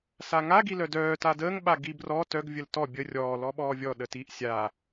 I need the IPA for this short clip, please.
s a ŋ a ɡ i l œ d œː t a d əː ŋ ɓ a ɡ i b r ɔ t œ ɡ vʲ ə l t ɔ bʲ ə rʲ ɔː l ɔ ɓ ɔː vʲ ɔ ɗ ə t i ʔ sʲ a

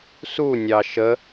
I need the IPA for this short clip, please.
s u nʲ ɑ ʃ ə

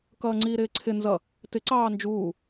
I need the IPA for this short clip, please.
k ʌː ŋ͡ǀ iː ɾ ɪː ǀʰ ɪ n z ʌ | t ɪ ǀ ɑː n d͡ʒ uː

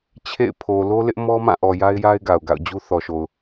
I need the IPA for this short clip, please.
t͡ɕʰ ḛ˦˨ ɪ̯ pʰ o˨ l o˦ l ɪ˦ ʔ m ɔ˦ m ã˦˨ ʔ ɔ˨ j a˦ ɪ̯ j a˦ ɪ̯ ɡ a˨ ʊ̯ ɡ a̰˦˨ ʊ̯ d͡ʑ u˦ θ ɔ˨ ʃ o˨ ʊ̯

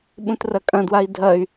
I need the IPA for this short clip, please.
ɓ ũ t r ɐ kʼ ɐ̃ d w a i̯ dʱ ɐ y̯

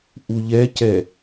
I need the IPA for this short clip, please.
ʔ u ʎ ɛ c ɛ

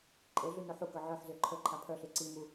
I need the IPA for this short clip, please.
ǃʼ e ɮ y n o ħ u k œ ʕ œ ħ z ø ǃʰ ə ǃʰ a pʰ œ ɬ e ǀ i m u

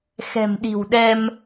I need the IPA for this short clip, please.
x ɛ̤˨˩ m ɗ i̤˨˩ w ɗ ɛ˧ m

